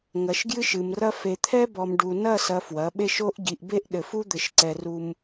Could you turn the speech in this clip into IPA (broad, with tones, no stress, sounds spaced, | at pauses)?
ŋ ɐ˨ ʃ ɡ j ɨ˦ ʃ ɨ˨ m r ɐ˦ f e˨ t̪ʰ ɛ˦ b ɔ˨ m ɖ u˨ n ɐ˦˨ s ɐ˨ f w ɐ˨˦ ɓ e˦ ʃ o˦ ʔ ɟ i˨ ʔ b e˦ ʔ ɗ ɘ˨ f u˦ d̪ ɘ˨ ʃ ǀ ɛ˨ r u˨ m